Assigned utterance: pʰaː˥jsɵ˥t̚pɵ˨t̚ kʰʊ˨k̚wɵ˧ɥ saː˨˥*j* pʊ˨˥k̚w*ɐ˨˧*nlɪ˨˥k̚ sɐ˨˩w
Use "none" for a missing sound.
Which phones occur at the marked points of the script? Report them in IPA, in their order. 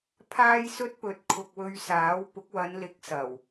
w, ɐ˨˧

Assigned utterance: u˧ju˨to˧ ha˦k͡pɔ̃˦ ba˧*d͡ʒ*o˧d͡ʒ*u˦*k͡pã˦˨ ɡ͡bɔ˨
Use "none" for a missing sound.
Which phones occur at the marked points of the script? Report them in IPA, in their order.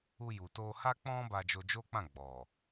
d͡ʒ, o˦

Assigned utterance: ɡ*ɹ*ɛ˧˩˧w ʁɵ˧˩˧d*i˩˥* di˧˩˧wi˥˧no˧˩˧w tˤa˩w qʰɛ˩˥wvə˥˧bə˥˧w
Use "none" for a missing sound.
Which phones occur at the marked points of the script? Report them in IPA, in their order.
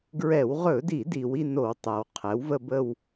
ɹ, i˧˩˧

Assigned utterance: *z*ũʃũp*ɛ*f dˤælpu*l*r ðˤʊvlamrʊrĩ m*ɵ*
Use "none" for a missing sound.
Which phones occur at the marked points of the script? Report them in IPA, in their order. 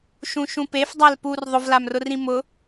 ʃ, e, none, ʊ

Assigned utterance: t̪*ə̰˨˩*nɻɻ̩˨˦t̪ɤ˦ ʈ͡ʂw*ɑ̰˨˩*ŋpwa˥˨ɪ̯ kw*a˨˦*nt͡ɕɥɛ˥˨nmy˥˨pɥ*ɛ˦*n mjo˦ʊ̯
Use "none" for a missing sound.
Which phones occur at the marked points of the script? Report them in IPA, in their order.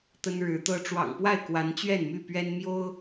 ə˦, ɑ̰˨˩, a˨˦, ɛ˦

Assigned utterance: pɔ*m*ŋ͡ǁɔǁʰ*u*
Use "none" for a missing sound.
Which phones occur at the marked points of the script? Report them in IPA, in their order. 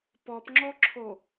p, o

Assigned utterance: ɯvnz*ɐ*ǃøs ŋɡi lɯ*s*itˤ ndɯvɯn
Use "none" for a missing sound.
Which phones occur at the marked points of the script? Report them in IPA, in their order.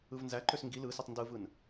æ, s

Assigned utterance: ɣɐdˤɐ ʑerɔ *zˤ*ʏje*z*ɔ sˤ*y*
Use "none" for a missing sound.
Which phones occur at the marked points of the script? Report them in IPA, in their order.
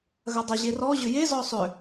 ʑ, z, ʏ

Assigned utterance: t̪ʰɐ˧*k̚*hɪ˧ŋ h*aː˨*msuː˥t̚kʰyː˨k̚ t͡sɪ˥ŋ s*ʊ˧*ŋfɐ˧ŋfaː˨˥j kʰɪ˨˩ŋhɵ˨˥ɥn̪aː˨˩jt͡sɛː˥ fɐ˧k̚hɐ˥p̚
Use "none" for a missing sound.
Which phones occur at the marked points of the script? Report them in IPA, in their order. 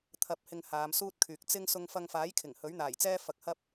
p̚, aː˨˧, ʊ˧

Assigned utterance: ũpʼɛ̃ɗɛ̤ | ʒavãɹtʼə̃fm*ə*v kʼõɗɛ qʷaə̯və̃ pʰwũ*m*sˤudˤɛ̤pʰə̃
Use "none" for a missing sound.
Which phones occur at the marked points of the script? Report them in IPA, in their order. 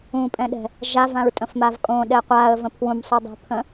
a, m

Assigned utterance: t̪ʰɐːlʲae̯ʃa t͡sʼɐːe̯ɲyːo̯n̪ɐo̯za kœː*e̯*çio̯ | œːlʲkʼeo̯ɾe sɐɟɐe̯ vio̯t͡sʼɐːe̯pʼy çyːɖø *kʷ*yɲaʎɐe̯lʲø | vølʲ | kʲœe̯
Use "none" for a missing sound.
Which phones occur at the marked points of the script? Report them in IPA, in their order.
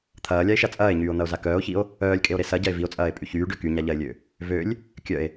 o̯, k

